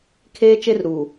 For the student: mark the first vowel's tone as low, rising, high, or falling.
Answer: high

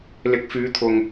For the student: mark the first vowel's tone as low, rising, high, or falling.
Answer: rising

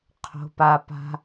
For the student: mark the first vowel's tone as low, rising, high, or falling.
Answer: high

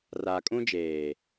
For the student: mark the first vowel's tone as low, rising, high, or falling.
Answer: low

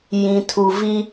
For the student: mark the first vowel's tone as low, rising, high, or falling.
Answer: low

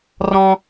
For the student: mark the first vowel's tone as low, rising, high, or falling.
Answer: low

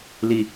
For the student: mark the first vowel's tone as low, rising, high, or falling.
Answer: low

